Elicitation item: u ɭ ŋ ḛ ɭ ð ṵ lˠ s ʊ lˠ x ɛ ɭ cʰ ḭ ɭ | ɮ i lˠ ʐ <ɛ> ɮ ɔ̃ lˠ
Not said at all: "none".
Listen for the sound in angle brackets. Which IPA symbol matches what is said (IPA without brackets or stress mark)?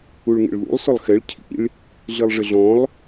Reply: ɪ